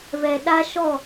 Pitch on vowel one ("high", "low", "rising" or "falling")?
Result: low